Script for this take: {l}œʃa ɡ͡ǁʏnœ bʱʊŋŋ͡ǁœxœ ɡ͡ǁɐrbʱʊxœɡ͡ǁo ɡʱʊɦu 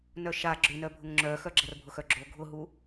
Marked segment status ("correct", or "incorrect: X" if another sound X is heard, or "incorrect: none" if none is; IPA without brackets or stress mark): incorrect: n